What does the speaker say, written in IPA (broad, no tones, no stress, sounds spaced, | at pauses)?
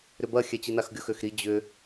ɾ ʏ b ɐ xʲ ɛ t͡ɕ i n a x ɡʲ ʊ x ø x ɾ i d͡ʑ ʏ